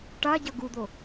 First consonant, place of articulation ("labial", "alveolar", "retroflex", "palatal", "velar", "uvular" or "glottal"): retroflex